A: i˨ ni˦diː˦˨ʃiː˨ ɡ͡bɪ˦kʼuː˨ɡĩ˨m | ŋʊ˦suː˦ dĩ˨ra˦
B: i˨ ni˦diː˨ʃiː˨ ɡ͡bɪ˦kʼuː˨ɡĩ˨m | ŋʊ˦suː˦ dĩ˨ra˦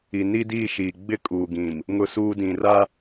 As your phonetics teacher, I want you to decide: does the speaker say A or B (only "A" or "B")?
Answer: A